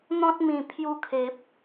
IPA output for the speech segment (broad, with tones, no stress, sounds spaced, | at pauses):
n̪ ɔ̃˦ t̚ m ĩ˨˩ pʰ j u˧ kʰ e˨ p̚